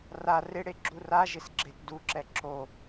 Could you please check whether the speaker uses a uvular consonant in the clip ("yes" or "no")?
no